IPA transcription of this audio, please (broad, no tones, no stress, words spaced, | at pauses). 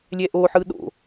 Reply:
lʲɛʔoħɯ ɗo̰